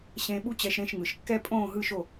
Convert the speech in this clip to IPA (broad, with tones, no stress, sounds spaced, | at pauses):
ɕ ẽ˧ ɓ u˥ t͡ɕ ɛ˧ ʃ ɾ ẽ˥˩ ʃ ŋ ɯ˩ ʃ kː ɛ˥ pʼ õː˥˩ ɦ ɯ˥˩ ʃ o˥˩